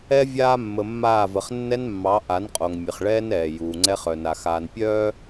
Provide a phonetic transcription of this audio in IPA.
ɛ˨vʲaː˨ mːə˨mːaː˦˨və˨χ nːɛ˦nmːɑ˨˦ ʔa˨˦nqʼo˨ŋ mʲə˨χɭɛː˦n ɛː˨ juː˨ŋ͡ǀɛ˦χ œ˨na˨xaː˨npʲœː˦

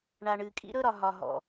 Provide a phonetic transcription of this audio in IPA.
ɳa˨ɳɨ˨kʼḭ˦ ɾɵ˦ɾɒ˨ ɦɒ˨ɦɔ̰˨

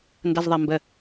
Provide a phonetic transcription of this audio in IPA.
ndɐzðˤɐmbə

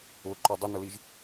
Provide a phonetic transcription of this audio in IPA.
ʊǃɔ dˤʊnʊliʒ

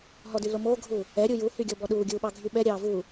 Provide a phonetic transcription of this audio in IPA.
ɦɔdy lomoːɡʱuː | ɛɾʲu juhy ɡʲɔbɔɗuːɡʲuː ɓɑɡʱyɓɛɾʲɑː vuː

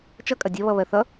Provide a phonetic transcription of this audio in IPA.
t͡ʃʌkʼɐ dʲɐβʌ βɜθʌ

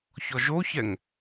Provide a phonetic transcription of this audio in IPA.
çɔʒoçɛŋ

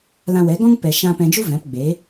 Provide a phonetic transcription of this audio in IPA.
lã˧wɛ˨˦ɡɔ̃˦ŋ pɛ˨ ʃã˧pɛ̃˧ d͡ʒu˧ vɛ̃˨˦pɡ͡be˨˦

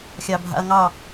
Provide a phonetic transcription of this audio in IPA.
xʲɑbʱa̰ɐ̯ŋɑ

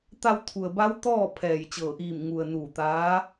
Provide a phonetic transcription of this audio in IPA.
t̪a˧wt̪ʰu˩ə̯ba˧˥w t̪ɔː˥˨ pʰɛː˧˩j t͡ɕɤː˧˩ʔiː˧˩m ŋu˩ə̯ nuː˧˩t̪aː˧˥

